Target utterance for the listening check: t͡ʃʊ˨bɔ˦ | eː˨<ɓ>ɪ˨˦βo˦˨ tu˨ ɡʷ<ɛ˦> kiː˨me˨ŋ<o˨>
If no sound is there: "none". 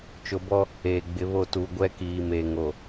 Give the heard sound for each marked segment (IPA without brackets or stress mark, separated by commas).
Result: ɡ͡b, ɛ˦, o˨